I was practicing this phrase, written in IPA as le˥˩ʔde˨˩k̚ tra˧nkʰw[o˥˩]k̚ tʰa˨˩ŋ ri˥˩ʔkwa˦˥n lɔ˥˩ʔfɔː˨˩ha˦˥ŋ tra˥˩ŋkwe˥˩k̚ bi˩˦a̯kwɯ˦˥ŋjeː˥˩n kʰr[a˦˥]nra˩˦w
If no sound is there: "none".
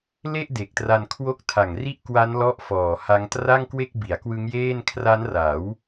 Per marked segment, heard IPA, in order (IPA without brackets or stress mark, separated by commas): o˥˩, a˦˥